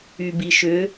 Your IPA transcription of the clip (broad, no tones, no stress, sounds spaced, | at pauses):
y b i ʃ ʏ